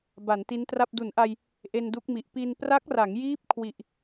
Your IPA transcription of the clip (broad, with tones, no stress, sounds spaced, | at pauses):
b a˩˦ n t i˦˥ n t r a˥˩ p̚ d u˩˦ n ʔ a˧ j | ʔ e˧ n d u˦˥ k̚ m i˨˩ ʔ p i˧ n p r a˦˥ k̚ r a˩˦ ŋ j iː˦˥ p̚ kʰ w i˨˩ ʔ